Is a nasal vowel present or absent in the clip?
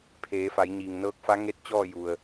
absent